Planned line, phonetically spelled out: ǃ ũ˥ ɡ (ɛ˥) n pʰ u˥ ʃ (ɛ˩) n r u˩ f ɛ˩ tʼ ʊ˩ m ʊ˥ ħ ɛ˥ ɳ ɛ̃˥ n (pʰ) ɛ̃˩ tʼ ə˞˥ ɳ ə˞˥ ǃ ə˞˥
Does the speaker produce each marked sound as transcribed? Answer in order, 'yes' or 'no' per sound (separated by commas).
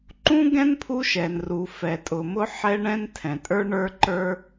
no, yes, no